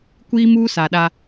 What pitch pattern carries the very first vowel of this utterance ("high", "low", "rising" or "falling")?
high